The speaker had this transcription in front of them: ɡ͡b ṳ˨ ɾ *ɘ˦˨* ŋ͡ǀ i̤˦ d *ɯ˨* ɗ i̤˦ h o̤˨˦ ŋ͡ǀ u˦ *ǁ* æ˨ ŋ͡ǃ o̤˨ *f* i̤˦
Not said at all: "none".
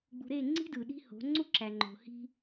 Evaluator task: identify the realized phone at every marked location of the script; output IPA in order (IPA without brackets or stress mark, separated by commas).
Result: e˦˨, ɯ˨, ǁ, h